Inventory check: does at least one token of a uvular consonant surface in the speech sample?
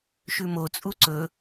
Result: no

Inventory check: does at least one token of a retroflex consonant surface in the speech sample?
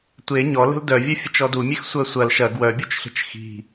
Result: no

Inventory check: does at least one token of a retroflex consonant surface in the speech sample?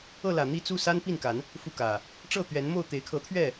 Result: yes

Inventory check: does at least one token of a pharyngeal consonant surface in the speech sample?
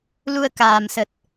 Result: no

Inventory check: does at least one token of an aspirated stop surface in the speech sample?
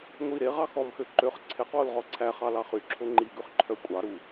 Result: yes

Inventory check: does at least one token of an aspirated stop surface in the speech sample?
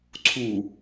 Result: yes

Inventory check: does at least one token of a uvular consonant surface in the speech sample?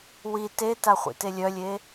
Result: yes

